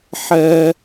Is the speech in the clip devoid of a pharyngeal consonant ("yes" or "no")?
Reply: no